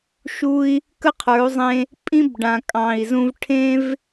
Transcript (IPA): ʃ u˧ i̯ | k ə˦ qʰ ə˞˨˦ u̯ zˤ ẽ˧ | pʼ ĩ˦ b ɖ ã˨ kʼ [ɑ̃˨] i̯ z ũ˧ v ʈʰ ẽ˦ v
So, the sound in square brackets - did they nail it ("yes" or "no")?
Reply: yes